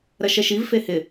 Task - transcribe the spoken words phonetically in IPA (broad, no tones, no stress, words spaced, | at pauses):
ɾɐʃɛʃiv fehɪ